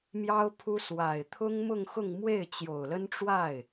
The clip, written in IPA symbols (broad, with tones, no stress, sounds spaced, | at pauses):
m j ɑ˥ ʊ̯ pʰ u˥ s w a˨˩ ɪ̯ t̪ʰ ʊ˥ ŋ m ʊ˥˧ ŋ x ʊ˥˧ ŋ m w e˥˩ ɪ̯ t͡ɕ j o˨˩ ʊ̯ l ə˥ n ʈ͡ʂ w a˥˩ ɪ̯